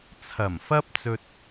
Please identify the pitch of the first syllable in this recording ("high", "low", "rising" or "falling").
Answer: low